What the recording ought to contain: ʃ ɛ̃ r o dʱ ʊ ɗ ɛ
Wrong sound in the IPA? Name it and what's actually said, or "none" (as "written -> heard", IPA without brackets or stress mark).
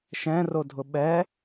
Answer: ɗ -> ɓ